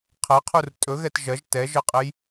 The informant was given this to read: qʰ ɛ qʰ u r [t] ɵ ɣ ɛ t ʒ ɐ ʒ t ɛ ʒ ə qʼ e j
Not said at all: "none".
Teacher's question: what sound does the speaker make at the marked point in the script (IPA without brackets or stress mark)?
tʼ